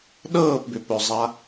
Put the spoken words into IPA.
ɗ ɤː p b ʏ p ɵ zˤ a

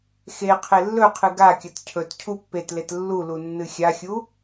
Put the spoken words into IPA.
x e qʰ e lː ɵ qʰ ɨ ɡ a kʲ ɐ t cʰ ɵ t cʰ u pː e t l e t lː u l u nː ɨ xʲ a xʲ u

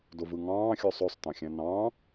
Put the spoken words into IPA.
d o v ɯ ŋ ɑ̃ː xʲ o sˤ ø sˤ t ɑ̃ xʲ æ̃ n ɑ̃ː

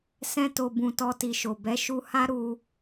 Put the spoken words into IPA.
s ɛ̃˧ t o˨ b ũ˨ t ɔ˧ t i˨ ʃ o˨ b ɛ˨˦ ʃ u˧ h a˦ ɾ u˧

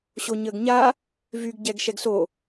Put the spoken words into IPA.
ɕ o ɲ əː ɡ ɲ a | v y ɡ ɟ ɛ ɡ ʃ ɛ ɡ s o

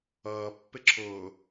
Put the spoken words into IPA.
ʌː pː ɪ ǁʰ ʊː

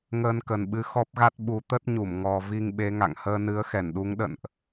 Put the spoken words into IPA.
ŋ əː˧ n k ə˨˩ n ɓ ɨ˨˦ x ɔ˦˥ p̚ ɣ a˦˥ t̚ ɓ u˨˦ t̪ ə˦˥ t̚ ɲ u˧˩ m ŋ ɔ˧ v i˧ ŋ ɓ e˨˦ ŋ a̰˧˨ ŋ h əː˧ n ɨ˨˦ ə̯ x ɛ˧˩ n ɗ u˨˦ ŋ ɗ ə̰˧˨ n ʔ

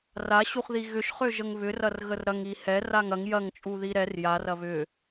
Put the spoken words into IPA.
r a ɕ u χ ð i ɣ ʏ ʃ χ ø ʒ ə ŋ β ʏ r ɐ r ɣ ə r ɾ ɐ ŋ i h ɛ r a ŋ ɐ ŋ j ɐ ŋ t͡ʃʼ u ð i ɾ ɛ r j a r ɐ β ʏ

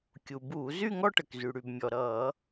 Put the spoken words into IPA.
kʲ u˩ b uː˧˩˧ z y˥˧ ŋ ɔ˥˧ ʈ ə˩ k z y˩ ɽ y˩ b mʲ ɔ˩ ɾ ʌː˧˩˧

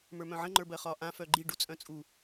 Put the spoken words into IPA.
m ə˞ m œ̃ ʕ ə̃ ŋ͡ǃ ə˞ b ɜ χ ɒ ʔ ã f œ ɡ͡ǃ i ɖ u t͡sʼ œ̃ t͡sʼ u

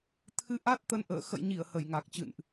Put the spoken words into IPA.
t̪ʰ ɨ˨˦ ʔ a˦˥ t̚ t̪ ə˧ n ʔ ə̰ː˧˨ x ə̰˧˨ j ɲ i˧˩ ə̯ h ə˧˩ j ŋ a˨˩ k̚ t͡ɕ ɨ̰˧˨ n ʔ

